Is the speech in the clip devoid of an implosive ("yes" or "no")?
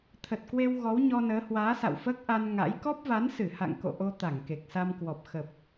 yes